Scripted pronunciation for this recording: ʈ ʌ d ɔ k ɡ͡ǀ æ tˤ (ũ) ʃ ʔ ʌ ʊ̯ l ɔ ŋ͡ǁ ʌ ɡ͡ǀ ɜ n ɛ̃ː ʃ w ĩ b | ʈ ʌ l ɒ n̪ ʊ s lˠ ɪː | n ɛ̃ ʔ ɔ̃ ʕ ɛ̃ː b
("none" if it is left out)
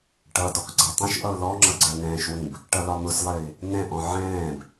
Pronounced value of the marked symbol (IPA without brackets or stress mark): ũ